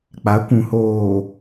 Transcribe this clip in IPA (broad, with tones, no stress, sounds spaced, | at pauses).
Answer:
k͡p a˨˦ kʷ ũ˨ h oː˨